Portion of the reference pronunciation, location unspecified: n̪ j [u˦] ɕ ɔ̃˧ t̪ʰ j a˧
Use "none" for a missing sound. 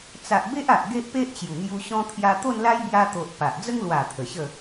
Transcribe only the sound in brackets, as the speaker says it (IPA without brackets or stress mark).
u˧